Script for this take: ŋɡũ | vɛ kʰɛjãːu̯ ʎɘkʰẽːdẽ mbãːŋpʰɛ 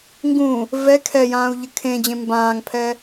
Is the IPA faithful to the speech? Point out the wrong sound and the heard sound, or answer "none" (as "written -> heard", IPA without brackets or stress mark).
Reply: d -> d͡ʑ